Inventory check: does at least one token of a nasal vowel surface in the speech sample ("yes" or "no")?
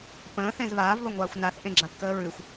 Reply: yes